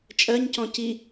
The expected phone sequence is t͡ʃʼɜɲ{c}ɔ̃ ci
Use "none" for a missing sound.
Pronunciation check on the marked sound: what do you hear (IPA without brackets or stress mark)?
c